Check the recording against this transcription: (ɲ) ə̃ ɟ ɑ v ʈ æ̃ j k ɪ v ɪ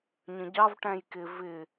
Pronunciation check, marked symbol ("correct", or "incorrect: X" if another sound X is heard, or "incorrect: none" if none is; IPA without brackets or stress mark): correct